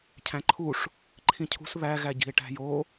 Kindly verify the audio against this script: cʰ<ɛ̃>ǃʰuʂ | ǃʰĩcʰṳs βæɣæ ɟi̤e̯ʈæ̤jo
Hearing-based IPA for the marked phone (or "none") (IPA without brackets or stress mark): æ̃